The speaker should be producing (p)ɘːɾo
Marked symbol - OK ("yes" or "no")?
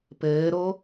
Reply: yes